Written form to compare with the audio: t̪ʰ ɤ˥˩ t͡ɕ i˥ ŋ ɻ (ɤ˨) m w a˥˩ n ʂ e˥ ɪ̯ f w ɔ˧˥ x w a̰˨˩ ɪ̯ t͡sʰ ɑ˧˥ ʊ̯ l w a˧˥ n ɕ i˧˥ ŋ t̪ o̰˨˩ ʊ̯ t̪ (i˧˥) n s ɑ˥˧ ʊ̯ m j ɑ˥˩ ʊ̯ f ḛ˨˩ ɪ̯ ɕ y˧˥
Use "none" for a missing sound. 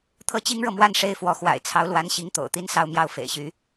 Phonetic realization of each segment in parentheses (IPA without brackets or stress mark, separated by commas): ɤ˨, i˥